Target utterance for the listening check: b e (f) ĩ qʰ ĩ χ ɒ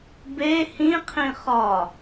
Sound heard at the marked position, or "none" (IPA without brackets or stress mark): h